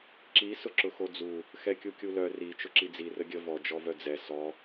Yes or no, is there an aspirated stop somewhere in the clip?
no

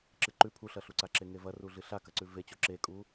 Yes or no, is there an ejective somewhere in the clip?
yes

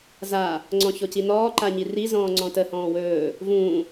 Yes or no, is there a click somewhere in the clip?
yes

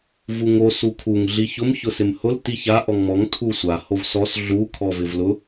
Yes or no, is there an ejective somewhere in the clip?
no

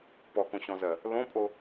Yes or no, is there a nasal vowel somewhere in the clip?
yes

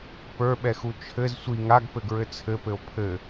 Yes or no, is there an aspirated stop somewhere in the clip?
yes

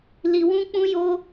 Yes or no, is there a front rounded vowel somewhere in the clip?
no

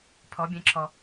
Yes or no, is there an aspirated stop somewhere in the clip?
yes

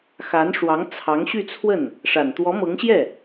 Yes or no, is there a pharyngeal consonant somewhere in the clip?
no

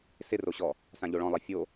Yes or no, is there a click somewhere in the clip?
no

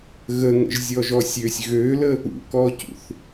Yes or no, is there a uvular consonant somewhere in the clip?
no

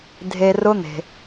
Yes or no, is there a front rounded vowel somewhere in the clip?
no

